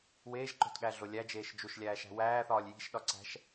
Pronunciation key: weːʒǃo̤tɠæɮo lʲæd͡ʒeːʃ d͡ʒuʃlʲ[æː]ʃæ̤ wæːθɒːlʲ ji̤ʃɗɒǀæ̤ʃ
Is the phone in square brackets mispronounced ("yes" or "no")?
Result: no